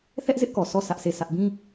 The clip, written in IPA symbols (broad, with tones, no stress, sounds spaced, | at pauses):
θ ɛ˦ ʔ z ɪ˦ ʔ k ɔ˨ s ɔ˦˨ s ä˦ ʔ s e˦˨ s ä˦ ʔ b ĩ˦